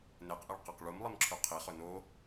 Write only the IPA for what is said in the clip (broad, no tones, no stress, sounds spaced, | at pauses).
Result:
n e q ʔ e ɭ q ɐ q ɭ u m lˠ i m ǁʰ ʉ qʰ i χ ɵ n o